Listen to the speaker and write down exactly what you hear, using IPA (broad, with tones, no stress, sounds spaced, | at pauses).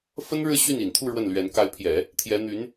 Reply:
f ə˥ n ɻ ɻ̩˥˧ ɕ y˥˩ n i˨˩ n t̪ʰ u˥˧ ɻ w ə˥˩ n l ɥ ɛ˧˥ n k a˧˥ ɪ̯ pʰ j ɛ˨˩˦ | t̪ʰ j ɛ˧˥ n̪ y˧˥ n